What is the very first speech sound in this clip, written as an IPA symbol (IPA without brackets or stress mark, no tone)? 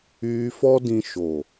yː